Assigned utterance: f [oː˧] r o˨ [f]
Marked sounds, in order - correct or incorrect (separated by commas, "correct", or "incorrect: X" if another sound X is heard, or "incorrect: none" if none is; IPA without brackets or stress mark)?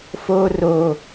correct, incorrect: none